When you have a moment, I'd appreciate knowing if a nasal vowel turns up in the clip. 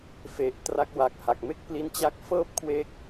no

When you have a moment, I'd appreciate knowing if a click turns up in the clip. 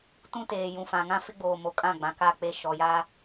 no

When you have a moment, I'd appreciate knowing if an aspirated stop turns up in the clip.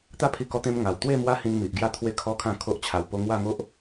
yes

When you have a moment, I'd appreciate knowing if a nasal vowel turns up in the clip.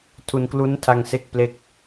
no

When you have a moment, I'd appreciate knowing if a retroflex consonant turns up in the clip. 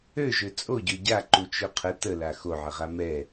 no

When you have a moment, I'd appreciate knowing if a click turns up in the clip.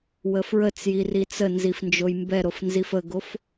no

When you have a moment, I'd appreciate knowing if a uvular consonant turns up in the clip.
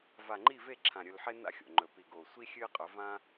yes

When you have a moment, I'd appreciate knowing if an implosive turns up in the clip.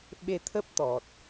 yes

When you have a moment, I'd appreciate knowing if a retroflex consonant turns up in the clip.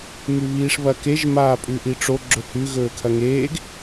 yes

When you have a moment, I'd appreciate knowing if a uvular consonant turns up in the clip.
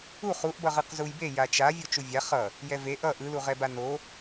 yes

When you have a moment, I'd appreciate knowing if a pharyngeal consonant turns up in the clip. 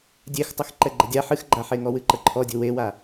yes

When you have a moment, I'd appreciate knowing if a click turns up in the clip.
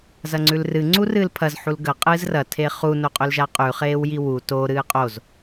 yes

